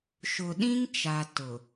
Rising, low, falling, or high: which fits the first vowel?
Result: low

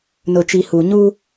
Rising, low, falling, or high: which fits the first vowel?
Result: low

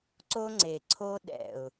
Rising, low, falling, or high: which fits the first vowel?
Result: high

